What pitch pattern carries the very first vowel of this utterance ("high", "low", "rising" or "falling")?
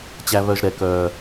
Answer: low